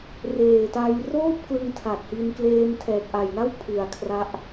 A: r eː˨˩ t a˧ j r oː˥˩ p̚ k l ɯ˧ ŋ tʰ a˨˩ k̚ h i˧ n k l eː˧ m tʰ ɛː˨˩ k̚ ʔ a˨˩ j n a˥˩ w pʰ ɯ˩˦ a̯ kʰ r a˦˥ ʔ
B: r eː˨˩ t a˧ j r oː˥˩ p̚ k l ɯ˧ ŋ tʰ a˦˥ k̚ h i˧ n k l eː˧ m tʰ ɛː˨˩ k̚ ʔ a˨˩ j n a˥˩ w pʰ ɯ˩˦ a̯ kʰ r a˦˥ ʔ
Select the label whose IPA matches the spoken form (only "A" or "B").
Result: A